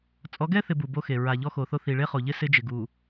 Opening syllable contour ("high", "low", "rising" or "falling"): rising